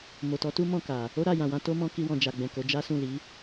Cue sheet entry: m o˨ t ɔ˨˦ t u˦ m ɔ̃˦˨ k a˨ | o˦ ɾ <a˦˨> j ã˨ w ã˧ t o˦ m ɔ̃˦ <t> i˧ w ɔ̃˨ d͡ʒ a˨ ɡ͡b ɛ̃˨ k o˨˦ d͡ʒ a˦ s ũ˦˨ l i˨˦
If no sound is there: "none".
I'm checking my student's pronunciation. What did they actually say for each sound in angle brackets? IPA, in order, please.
a˦˨, k

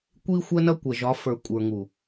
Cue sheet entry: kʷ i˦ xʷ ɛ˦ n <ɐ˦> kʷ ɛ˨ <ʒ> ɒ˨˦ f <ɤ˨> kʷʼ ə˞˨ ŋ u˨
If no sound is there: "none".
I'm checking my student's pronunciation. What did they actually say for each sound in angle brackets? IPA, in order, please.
ɐ˦, ʒ, ə˞˨

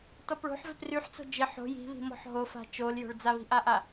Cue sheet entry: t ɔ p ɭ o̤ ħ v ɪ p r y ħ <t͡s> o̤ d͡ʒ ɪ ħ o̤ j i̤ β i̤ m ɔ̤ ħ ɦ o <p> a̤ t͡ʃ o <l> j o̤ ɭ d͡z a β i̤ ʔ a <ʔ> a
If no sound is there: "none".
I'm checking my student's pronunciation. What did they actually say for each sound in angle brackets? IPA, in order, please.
t͡s, f, l, ʔ

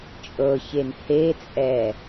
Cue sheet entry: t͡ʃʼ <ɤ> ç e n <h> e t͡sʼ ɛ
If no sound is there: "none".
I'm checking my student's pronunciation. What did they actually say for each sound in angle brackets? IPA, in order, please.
ɤ, h

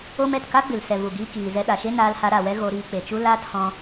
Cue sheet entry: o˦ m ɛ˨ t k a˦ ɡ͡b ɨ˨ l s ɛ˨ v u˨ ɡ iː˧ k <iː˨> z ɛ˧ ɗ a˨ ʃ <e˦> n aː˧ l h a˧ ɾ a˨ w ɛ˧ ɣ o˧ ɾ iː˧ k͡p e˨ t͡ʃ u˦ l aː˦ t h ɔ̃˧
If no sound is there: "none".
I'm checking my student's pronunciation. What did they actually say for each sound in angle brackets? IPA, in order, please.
iː˨, e˦

